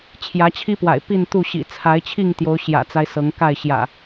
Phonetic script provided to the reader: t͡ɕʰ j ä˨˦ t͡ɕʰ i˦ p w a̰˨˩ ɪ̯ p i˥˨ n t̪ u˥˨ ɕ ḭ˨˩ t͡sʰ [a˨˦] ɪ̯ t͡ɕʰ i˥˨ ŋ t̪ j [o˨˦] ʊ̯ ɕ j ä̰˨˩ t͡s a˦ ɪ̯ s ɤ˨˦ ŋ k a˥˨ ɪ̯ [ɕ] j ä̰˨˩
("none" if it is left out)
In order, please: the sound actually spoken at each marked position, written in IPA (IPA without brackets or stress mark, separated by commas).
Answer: a˨˦, o˨˦, ɕ